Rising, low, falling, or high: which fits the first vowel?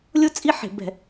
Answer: high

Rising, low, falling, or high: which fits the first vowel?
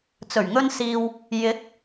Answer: low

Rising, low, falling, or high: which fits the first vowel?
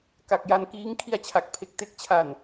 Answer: low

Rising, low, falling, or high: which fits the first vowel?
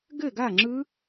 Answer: falling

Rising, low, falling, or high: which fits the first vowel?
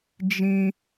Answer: high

